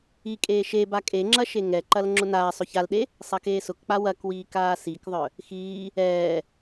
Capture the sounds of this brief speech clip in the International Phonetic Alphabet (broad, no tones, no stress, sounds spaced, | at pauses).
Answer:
i kʼ eː ʃ e b a kʼ e ŋ͡ǁ ɐ ʃ e ŋ ɛ ǃ ɐ l ŋ͡ǁ ʊ n aː sˤ ʊ ç a l ɗ e | sˤ ɐ k eː s ʊ k k͡p a w ɐ k w iː k aː s i k ðˤ œ | x iː | ɛː